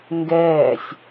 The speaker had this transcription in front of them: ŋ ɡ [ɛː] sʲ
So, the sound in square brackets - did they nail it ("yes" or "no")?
yes